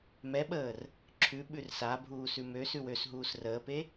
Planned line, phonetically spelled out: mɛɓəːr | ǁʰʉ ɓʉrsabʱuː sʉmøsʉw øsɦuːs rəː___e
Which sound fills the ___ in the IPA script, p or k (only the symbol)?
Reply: p